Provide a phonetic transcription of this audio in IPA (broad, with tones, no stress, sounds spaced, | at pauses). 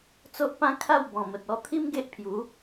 t͡s o˦ ʔ p ã˦ kʰ a˥˧ w b ɔ̃˨˩ m ə˨ t̚ ɔ˧ t̪ʰ i˦ m ɡ e˦ ʔ pʰ j u˨˦